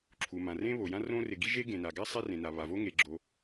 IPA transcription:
ǁʰ u˩ m ã˩ r ẽ˥ β o˩ j ã˥ r õ˥ r ɪ˩ ɡ i˥ ʒ e˥ ɡ ẽ˩ n a˩ ɡ a˥ sˤ e˥ r ẽ˩ n a˩ β a˩ v o˥ ŋ e˩ ɡ͡ǁ o˩

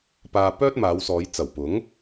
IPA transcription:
p aː˧ p œː˥ t̚ m aː˨˧ w s ɔː˨˧ j t͡s ɐ˨˩ w p ʊ˨˥ ŋ

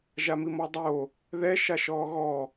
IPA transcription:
ʒ a m i m ɔ dˤ o | ð ɛ ʃ a ʃ ɔː ɣ ɔ

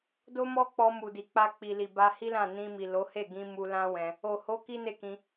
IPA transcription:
d o˦ m ɔ˦ k͡p ɔ˧ m u˨ d i˨ k͡p a˧ k͡p i˨ l i˨ b a˧ h i˦ l ã˦˨ n ĩ˧ m i˨ l o˨˦ h e˦˨ ɡ ĩ˧ m u˧ l ã˦ w ɛ̃˧ | o˨ h o˨˦ k i˦ n e˦˨ k ĩ˧

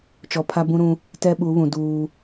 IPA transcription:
t͡ʃ ɔ˨ pʰ a˦ b ũ˦ ɾ ũ˦ | t ɛ˦ ɓ u˨˦ β ũ˨ d uː˦

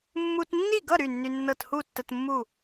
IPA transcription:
mː u˧ t nː i˥˨ ɡ ʌ˥˨ ɾ y˥˨ nː y˧ nː ɤ˥˨ t h u˥˨ tː ə˧ t mː u˥˨

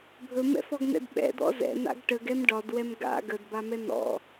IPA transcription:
bʱ ɵ m ɛ̰ f ɔ ɡ n ɛ̰ d ɓ ɛ̰ d̪ ɔ̰ z ɛ̰ n̪ a̰ ɡ ʈ ə ɡ ɛ m ɖ ɒ d w ɛ m ɡ a̰ ɡ ə d b a m ɛ n̪ ɔ̰

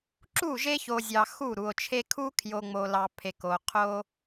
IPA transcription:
ǁ u˦˨ ʒ e˦ ç o˨ zʲ ɑ˨ x u˦˨ ɾ u˨ o̯ t͡ʃʰ e˦ kʰ u˦ kʰ j o˨ ŋ͡m o˨ l ɑ˨ pʰ e˨ k o˨ qʰ o˦

